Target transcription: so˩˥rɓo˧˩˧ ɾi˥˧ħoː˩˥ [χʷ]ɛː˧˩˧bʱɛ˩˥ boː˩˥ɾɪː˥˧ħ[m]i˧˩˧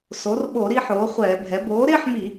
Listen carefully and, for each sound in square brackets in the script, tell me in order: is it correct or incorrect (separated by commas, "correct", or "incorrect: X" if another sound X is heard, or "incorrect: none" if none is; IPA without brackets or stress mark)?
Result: correct, correct